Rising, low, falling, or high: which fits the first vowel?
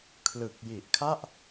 low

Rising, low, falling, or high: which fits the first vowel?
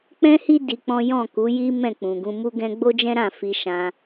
high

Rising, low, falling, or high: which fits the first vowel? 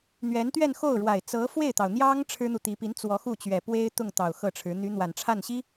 rising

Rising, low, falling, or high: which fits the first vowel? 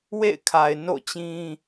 falling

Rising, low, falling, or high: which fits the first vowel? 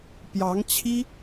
rising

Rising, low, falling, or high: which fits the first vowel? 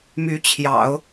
rising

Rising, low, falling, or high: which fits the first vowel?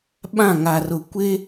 falling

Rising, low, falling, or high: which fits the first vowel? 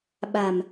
low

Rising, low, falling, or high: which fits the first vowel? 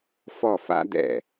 falling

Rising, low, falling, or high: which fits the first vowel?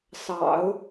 low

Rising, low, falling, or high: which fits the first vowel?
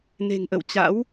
low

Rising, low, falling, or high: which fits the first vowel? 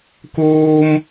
high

